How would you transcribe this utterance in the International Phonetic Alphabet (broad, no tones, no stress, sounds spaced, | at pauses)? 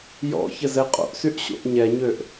j ɔ̰ ç ə z ɛ qʼ o̰ ʔ s y ʔ ɕ o̰ ʔ ɲ ɛ ɲ ø ʔ